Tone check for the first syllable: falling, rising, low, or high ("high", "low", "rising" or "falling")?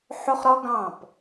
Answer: high